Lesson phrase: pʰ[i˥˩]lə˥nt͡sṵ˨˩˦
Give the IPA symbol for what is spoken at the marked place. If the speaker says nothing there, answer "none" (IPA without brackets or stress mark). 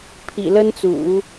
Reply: ḭ˨˩